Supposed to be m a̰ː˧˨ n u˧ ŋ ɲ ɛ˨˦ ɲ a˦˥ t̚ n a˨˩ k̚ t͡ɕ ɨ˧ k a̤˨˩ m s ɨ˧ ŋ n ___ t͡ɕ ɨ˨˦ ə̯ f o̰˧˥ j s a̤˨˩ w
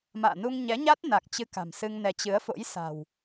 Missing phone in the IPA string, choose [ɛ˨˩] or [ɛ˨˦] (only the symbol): ɛ˨˦